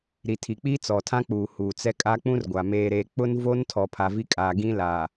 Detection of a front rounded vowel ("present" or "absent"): absent